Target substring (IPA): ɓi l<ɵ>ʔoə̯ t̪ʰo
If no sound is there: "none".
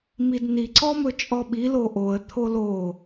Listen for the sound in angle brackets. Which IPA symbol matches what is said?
o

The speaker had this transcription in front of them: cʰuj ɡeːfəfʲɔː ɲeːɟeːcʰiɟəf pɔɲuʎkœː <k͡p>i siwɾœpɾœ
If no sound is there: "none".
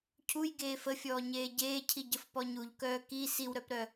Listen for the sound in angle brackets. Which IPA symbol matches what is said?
k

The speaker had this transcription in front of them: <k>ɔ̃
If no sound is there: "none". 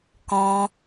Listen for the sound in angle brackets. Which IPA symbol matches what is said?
k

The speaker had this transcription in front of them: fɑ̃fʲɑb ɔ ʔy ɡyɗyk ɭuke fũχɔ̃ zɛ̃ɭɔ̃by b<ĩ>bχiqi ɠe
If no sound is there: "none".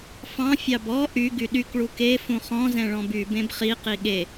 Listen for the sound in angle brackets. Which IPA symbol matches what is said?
ẽ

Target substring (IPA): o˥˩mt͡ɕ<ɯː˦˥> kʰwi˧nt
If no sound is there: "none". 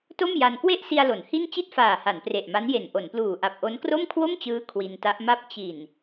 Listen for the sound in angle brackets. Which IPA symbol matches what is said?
ɯː˦˥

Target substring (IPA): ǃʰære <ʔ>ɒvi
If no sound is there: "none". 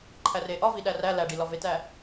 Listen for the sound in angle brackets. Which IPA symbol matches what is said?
ʔ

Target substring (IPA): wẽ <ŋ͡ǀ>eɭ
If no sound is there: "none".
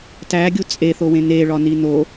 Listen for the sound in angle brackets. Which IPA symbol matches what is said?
n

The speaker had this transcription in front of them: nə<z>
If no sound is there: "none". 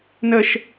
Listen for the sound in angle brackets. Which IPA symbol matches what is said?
ʃ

